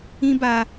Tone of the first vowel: high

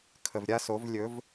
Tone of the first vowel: low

